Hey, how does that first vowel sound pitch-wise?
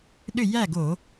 falling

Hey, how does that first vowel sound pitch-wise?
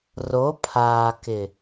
rising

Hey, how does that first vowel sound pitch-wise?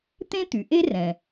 high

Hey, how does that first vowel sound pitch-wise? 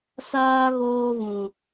high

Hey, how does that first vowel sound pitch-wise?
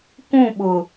falling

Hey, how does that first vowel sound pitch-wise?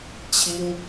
high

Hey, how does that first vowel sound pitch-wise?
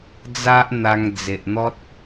high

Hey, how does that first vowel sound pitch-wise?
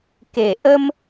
low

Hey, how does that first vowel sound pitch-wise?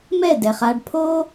falling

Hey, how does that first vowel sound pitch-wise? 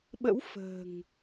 rising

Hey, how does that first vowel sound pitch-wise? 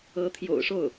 rising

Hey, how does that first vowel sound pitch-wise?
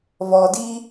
low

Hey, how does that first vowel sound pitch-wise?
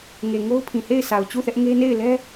low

